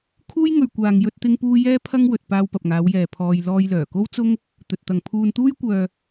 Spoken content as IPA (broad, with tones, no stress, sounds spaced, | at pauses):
kʰ uː˥ j ŋ ɵ˧ ɥ kʷ aː˧ ŋ j ɵ˥ t̚ t̪ ɪ˥ ŋ p uː˥ j ɛː˥ pʰ ɐ˥ ŋ w ɵ˨ t̚ p aː˧ w p ɐ˨ p̚ ŋ aː˨˧ w j ɛː˨ pʰ ɔː˧ j l ɔː˧ j l œː˨˩ k o˥ w t͡s ʊ˥ ŋ | t̪ ɵ˨ t̚ t̪ ɐ˨ ŋ pʰ uː˧ n t̪ uː˥ j kʷ œː˧